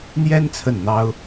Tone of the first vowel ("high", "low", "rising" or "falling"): high